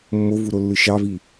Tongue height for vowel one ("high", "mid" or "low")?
mid